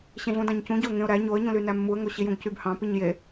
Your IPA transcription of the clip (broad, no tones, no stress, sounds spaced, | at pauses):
ɕ ẽ ɮ ũ d ɑ̃ ɲ c ũ ɟ o ə̯ ŋ ẽ ʊ̯ ɾ æ ɲ o ə̯ ɲ ũ l y n æ mː u ə̯ ŋ o ɕ i j ũ ɡ c y b h ɑ̃ p i ɲ j e